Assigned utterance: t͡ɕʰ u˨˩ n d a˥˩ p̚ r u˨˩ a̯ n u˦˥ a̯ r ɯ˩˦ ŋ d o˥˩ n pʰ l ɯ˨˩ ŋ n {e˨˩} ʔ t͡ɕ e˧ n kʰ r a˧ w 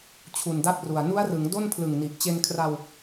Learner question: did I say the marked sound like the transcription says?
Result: no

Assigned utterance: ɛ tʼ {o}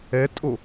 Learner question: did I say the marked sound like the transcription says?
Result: yes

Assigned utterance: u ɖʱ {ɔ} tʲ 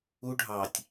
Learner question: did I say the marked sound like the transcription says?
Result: no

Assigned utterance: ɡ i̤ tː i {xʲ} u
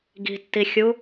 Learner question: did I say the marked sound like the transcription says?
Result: yes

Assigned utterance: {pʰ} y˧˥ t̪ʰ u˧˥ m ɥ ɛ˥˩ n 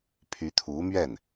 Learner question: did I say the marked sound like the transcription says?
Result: yes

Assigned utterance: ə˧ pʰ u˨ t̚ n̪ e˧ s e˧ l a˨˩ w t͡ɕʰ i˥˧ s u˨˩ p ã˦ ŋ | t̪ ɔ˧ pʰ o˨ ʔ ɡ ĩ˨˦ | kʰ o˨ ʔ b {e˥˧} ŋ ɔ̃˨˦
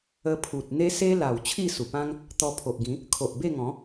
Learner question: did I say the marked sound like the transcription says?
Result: yes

